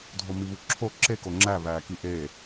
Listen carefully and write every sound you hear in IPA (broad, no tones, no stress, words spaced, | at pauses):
dʱomiβuǁʰo ǁeko ŋ͡ǁæβæːki ʔe